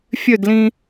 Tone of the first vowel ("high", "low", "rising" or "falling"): falling